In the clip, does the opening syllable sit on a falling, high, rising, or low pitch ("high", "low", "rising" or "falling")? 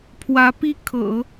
rising